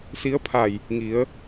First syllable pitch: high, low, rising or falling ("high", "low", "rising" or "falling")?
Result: rising